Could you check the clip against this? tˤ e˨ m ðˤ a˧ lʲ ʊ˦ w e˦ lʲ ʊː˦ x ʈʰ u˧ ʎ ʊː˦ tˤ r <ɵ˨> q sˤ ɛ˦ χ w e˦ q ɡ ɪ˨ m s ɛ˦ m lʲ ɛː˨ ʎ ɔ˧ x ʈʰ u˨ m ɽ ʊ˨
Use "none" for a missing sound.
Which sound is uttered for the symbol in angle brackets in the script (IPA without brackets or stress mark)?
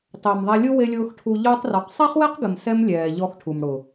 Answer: ɔ˨